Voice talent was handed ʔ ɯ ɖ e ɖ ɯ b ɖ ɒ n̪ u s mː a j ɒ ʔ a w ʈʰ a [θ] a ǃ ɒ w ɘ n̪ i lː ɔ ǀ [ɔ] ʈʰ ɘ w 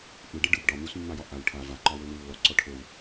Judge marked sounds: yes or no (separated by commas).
no, yes